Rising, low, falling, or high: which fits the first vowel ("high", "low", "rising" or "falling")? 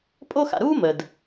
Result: high